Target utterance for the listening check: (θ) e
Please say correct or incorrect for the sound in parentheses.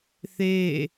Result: correct